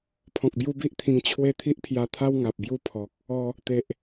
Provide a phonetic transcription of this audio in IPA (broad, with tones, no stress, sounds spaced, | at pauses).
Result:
pʰ ɔ̃˨ k̚ b j u˦ b i˦ ʔ t̪ʰ ĩ˧ ŋ t͡ɕʰ w e˥˧ t̪ʰ i˦ ʔ pʰ j a˧ t̪ʰ a˦ w ŋ a˨ p̚ b j u˥˧ pʰ ɔ˨ k̚ | ɔ˧ | t̪ e˨ ʔ